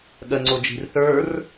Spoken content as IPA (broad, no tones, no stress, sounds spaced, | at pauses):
ɠ ɜ ŋ͡ǀ o d͡ʒ i̤ r θ ə˞ r